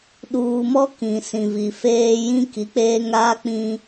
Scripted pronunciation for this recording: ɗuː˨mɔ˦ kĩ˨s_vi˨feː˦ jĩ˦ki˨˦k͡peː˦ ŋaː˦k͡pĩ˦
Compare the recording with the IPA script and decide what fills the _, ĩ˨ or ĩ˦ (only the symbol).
ĩ˨